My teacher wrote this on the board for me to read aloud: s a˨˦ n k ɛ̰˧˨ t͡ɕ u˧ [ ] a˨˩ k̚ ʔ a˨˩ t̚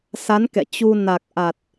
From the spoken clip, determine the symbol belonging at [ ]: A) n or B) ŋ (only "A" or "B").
A